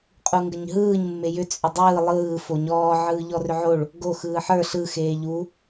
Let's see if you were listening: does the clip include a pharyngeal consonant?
yes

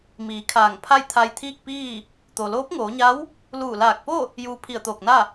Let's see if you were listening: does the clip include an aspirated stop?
yes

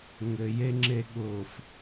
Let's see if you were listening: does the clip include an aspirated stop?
no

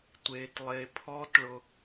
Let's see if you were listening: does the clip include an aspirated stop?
yes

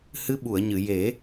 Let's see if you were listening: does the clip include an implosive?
yes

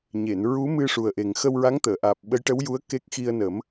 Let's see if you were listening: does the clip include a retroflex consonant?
yes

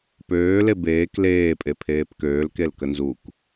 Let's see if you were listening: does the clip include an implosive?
no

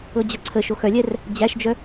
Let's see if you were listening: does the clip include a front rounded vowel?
yes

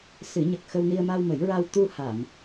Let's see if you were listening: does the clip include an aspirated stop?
no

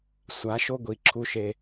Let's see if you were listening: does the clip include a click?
yes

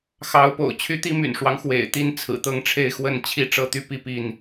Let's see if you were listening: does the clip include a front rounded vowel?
yes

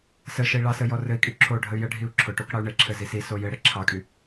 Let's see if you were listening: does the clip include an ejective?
yes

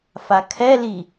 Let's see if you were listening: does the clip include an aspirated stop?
yes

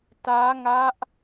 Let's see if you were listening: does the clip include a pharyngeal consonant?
no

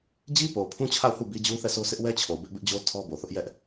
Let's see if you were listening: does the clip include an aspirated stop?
yes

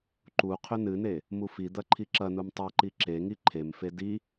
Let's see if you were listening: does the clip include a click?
yes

